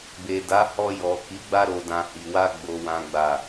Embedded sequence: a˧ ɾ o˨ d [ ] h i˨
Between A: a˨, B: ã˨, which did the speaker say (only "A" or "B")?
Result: B